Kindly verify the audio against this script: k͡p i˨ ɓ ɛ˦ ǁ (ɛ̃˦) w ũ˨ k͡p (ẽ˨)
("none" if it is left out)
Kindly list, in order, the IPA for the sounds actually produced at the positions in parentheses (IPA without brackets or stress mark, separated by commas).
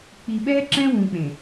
ɛ̃˦, ẽ˨